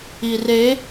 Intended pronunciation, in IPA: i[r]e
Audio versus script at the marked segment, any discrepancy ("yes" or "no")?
no